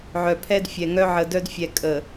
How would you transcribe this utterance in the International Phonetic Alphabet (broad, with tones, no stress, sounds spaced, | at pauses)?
ʕ œ˨ pʰ ɛ˦ d fʲ ɛ˨ ŋ œ˦ ʕ ə˨ d œ˦ d fʲ ɛ˨ kʼ ə˨